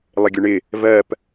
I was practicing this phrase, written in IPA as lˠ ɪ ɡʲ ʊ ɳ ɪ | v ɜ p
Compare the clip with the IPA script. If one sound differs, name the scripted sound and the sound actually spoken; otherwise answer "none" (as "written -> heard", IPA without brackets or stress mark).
none